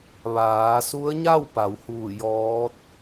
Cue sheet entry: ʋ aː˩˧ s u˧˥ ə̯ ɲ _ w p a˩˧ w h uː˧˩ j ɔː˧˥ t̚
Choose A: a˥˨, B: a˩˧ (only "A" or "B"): A